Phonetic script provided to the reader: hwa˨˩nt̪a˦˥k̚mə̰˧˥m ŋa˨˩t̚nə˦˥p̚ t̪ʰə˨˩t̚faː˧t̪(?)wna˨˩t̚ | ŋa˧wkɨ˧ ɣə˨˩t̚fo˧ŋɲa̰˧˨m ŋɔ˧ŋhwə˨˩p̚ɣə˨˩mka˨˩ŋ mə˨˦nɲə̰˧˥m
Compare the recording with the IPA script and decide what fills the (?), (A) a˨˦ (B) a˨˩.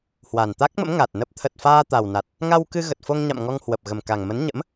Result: B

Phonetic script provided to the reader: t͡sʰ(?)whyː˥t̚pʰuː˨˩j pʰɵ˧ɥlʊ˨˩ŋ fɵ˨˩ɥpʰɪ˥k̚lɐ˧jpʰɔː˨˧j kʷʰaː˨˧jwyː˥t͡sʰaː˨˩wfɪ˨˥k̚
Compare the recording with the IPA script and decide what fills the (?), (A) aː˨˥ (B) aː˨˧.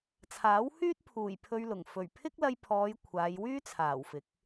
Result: A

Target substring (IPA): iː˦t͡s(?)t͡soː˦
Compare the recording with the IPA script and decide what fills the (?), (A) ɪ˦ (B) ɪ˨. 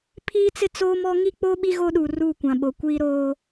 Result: A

